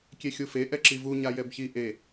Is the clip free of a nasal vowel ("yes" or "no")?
yes